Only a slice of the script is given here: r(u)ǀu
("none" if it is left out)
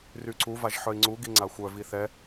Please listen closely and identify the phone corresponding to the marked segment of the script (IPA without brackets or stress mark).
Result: y